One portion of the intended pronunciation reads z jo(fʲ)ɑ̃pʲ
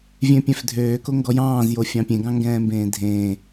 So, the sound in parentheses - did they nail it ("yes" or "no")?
yes